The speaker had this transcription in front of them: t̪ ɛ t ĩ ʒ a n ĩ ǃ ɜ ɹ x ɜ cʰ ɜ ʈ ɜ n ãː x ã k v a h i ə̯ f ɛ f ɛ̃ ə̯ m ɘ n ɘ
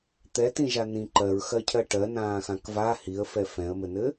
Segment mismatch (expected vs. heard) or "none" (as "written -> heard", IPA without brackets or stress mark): none